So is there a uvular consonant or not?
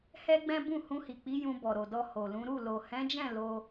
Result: no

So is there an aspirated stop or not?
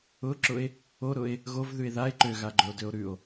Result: no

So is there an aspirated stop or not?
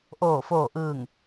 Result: no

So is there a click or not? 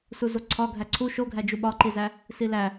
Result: yes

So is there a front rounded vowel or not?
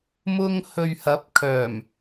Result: yes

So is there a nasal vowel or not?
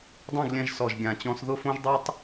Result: yes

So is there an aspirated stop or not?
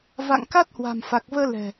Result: no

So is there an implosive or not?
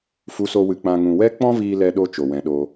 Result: yes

